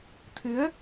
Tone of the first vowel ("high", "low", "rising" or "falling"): rising